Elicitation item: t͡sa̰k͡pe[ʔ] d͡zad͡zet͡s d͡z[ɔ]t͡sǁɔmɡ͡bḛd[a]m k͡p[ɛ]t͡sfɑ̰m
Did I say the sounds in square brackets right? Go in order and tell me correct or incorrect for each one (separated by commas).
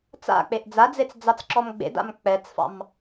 correct, incorrect, incorrect, correct